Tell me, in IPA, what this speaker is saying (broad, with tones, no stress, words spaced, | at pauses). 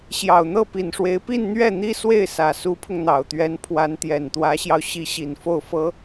ɕjɑ˨˩ʊ̯n̪ɤ˥˩pi˨˩nʂwe˧˥ɪ̯ pi˥˧n n̪ɥɛ˥˩n̪i˥ swe˥˩ɪ̯sä˨˩ su˧˥pʰʊ˧ŋn̪ɑ˨˩ʊ̯t̪ɥɛ˧˥n pʰwa˧˥nt̪jɛ˨˩nt̪wä˧˥ɕjɑ˧ʊ̯ ɕi˧˥ɕi˨˩nfo˥˩ʊ̯fɤ˥